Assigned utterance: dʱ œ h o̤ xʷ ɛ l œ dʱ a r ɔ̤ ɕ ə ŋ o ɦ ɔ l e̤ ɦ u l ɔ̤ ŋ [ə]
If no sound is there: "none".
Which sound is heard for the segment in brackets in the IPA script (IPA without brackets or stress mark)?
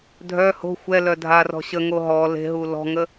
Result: ə